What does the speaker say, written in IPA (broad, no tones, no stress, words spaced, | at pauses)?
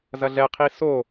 zɐɮɛqʰi so